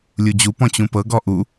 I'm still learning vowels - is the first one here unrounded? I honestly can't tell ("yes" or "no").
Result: no